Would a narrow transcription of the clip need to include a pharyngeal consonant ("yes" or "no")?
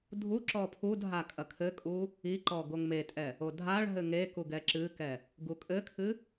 no